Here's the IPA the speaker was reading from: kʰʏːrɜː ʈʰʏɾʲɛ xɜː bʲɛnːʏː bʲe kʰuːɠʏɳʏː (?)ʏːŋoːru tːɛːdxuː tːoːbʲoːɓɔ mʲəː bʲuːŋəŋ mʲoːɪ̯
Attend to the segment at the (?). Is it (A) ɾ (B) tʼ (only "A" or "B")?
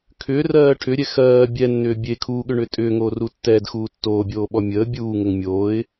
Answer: B